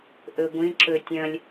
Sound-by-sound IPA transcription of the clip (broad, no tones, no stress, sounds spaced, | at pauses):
ʔ ɵ ɡʷ ĩ ǁ ɵ tʲ ɐ̃ lʲ